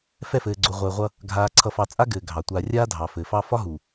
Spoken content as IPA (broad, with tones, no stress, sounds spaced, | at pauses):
f ɛ˦˨ f ɘː˨ ɡ͡ǀ o˨ ʁʷ ɘː˨ ʁʷ ʌ˦ | ɡʱ aː˨ ǀʰ ʌ˨ f ɑ˨ t͡sʼ a˦ ɡ ɘː˨ ɡʱ ɑ˨ tʷ aː˨ rʲ aː˦ dʱ ɑ˨ f ɘː˨ f ɑ˦ f ɒ˦ ɦ u˨